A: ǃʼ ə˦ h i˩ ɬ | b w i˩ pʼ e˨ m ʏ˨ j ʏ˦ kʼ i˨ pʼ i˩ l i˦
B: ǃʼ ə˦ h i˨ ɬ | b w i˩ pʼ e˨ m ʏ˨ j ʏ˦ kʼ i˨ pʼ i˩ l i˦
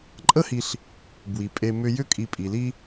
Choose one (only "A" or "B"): B